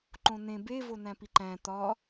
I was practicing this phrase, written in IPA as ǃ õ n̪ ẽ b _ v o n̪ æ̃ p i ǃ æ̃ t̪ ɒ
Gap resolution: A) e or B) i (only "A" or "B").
A